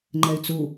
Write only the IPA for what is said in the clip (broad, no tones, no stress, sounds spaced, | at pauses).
ŋ͡ǃ ɛ y̯ t͡s u